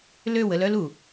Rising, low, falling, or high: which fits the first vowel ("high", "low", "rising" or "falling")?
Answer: falling